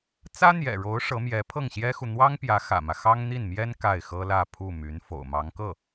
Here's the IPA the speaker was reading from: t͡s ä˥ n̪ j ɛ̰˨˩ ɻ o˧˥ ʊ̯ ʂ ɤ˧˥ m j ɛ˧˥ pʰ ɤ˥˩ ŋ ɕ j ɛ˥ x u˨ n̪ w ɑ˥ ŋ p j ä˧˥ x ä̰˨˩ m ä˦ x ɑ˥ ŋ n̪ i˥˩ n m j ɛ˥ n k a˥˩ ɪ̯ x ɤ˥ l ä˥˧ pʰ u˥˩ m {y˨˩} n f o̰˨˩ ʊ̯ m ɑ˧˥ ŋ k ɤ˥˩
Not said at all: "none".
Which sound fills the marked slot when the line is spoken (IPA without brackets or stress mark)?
y˧˥